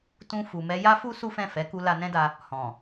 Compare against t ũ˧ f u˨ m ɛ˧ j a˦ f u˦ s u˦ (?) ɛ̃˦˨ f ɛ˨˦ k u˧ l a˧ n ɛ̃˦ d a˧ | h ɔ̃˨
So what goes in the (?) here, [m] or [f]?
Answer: f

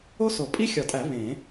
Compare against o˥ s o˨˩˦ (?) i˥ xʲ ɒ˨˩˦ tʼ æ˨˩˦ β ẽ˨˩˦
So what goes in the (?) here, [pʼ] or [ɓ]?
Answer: pʼ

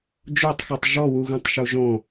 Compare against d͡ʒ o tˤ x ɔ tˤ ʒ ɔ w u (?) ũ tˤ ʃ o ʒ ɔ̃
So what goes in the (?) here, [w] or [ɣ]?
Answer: ɣ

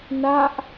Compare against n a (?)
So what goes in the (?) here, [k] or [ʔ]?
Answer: ʔ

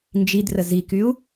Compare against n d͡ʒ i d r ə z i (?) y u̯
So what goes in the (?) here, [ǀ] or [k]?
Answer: k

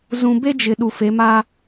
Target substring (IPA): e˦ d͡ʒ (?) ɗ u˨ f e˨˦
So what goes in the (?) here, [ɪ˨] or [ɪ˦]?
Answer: ɪ˨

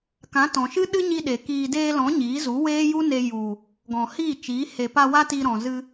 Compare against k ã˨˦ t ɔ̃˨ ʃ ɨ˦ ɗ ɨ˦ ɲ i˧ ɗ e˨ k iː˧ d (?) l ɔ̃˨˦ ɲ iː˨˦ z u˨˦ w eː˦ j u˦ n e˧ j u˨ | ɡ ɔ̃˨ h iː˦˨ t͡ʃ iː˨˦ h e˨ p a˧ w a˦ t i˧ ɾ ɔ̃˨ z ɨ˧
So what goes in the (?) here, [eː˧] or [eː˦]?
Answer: eː˧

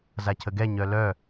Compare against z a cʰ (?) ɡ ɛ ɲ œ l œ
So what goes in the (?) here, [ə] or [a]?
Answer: ə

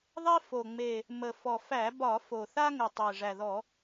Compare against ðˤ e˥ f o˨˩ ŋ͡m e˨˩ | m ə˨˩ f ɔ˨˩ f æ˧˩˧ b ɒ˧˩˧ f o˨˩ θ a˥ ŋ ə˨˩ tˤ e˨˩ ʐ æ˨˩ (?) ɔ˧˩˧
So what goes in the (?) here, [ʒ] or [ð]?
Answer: ð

